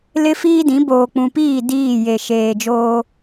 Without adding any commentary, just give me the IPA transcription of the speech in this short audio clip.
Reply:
lɪ˦fiː˦dĩ˨˦ boː˨k͡pũ˨piː˦˨ diː˦˨je˨ ʃeː˨d͡ʒoː˦

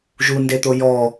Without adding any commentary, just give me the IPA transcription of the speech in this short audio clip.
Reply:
ʒundet̪o jɔ

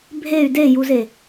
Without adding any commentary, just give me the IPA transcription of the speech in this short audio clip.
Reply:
bʱey̯ dejuze

